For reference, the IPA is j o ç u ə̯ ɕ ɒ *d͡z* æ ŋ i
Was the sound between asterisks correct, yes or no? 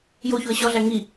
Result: no